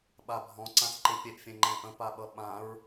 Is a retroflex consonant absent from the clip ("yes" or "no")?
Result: yes